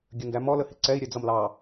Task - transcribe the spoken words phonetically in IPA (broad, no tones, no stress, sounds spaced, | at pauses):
ɡʲ ə n d æ m ɔ l ə h ɪ ǀ ɛ i̯ ɾʲ ɛ d͡z ʌ m l ɑ